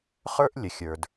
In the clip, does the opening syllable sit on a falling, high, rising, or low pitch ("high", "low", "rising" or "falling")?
high